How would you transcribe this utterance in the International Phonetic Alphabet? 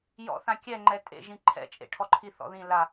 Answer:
j ɔ̰ θ ã kʲ ɛ ŋ͡ǃ ɛ tʼ ḛ ʒ ĩ ǃʰ ɛ̰ t͡ʃʼ ḛ ʈʰ ɔ ǃʰ i θ ɔ̰ ð ĩ l a

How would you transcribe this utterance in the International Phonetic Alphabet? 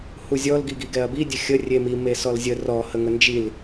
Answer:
h u zʲ ɔ l ɡ i ɡ i ɡ ɛ ɐ̯ b i dʲ ə xʲ ə rʲ e m i m e s ɔ l zʲ ə r ɔ h ə ŋ ə n d͡ʒ i l

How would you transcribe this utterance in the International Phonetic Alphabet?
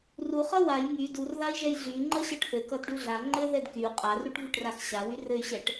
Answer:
r u χ ʌ w a j ŋ y d u r ð a i̯ ʒ ɛ j ɮ y ŋ͡ǃ ʌ ɕ ʌ ʈ θ ɘ k ʌ d ɖ u ɮ a ŋ͡ǃ ɘ ð ɛ d k y u̯ qʼ a r u ʈ v y ʈ r a x ɕ a w y r ɘ y̯ ɕ ɛ ʈ

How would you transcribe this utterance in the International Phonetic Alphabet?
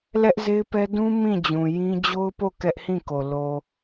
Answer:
l ɛ˦ ʔ z e˦ ɪ̯ p ɛ˦ d ũ˦ m ĩ˦˨ d͡ʑ ũ˨ j ĩ˦ d͡ʑ o˦ ʊ̯ p o˦˨ k ɛ˦ ʔ h ĩ˦˨ k o˨ l o˨

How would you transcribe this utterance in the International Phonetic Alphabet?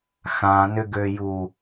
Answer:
x ã n ʏ ɡ ø j u

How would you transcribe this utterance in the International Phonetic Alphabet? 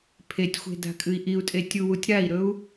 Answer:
pʰ e tʲ xʷ e̤ d a̤ kʼ ɨ i̯ ʔ i u̯ tʼ e tʲ u w u tʲ ɾ a i̯ ɾ ɵ u̯

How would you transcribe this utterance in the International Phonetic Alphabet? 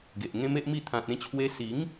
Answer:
ɡ e˨ ʔ ŋ ẽ˦ m e˦ ʔ m i˥˧ t̪ʰ ã˨ t̚ ẽ˧ t͡ɕʰ w e˧ s i˨˦ ŋ

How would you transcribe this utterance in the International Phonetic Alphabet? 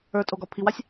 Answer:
ə˞ tʼ o ɡ ɒ pʰ i w a sʲ

